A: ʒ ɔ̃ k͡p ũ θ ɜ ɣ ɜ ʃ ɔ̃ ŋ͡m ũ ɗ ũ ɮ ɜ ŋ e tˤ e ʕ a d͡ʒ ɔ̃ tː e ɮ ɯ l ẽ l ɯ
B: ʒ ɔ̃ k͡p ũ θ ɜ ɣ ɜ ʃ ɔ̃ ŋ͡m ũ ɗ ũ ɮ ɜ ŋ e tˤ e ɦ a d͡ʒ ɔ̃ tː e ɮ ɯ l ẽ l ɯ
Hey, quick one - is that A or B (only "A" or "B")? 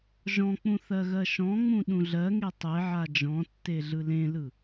A